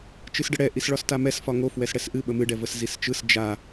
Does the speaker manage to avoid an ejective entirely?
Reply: yes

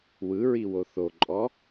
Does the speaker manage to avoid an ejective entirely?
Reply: no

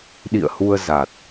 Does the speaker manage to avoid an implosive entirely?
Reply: no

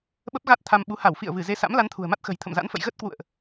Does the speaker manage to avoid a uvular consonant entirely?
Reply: yes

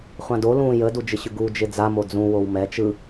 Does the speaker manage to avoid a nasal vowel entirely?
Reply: no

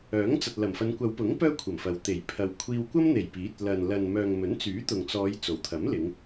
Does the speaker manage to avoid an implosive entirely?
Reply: yes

